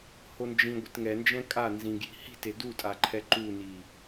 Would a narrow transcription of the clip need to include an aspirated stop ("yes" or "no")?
yes